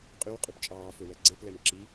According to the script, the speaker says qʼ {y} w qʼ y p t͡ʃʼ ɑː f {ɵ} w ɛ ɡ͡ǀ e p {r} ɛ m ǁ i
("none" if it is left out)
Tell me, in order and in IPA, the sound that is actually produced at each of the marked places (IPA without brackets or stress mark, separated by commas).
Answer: y, ɵ, l